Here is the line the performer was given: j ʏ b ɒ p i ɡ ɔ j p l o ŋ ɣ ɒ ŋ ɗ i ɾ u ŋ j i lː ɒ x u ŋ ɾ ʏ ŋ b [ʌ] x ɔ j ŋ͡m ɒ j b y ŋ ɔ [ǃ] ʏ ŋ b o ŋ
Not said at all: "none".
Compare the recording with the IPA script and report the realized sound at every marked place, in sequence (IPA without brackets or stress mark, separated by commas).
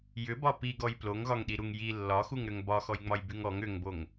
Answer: ɒ, ŋ